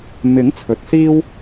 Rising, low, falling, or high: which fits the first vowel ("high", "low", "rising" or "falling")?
rising